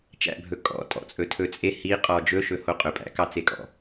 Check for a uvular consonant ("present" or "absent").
present